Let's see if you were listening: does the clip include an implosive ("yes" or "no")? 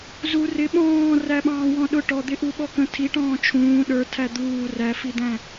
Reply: yes